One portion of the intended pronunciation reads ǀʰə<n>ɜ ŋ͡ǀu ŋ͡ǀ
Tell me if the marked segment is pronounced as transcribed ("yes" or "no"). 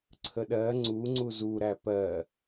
no